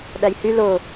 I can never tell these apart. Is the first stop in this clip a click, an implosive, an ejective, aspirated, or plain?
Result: implosive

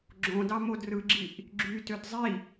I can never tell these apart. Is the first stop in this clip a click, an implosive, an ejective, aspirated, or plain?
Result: click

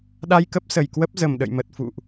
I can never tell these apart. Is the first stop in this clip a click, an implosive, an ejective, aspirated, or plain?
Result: implosive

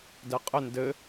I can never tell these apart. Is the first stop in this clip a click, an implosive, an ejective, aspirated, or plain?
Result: plain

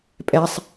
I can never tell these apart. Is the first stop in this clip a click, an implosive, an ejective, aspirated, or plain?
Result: ejective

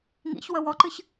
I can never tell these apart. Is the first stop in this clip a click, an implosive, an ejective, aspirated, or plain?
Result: click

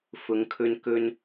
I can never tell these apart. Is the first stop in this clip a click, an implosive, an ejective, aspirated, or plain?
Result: aspirated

